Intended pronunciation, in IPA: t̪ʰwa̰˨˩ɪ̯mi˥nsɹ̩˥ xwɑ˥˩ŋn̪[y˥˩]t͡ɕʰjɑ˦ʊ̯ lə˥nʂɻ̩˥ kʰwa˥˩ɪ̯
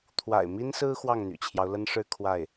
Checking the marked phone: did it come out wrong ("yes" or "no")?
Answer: yes